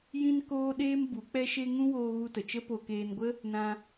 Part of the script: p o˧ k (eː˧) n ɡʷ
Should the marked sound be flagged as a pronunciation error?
no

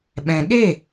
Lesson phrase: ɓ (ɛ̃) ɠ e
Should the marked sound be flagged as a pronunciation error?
no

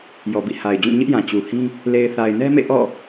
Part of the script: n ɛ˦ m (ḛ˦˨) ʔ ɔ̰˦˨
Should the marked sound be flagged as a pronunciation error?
no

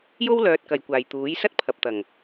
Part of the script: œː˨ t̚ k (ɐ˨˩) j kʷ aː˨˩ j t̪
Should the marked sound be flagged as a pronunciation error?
no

